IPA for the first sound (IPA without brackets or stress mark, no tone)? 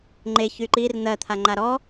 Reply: ŋ͡ǃ